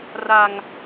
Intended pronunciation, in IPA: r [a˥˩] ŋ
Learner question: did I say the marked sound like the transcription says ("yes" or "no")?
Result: no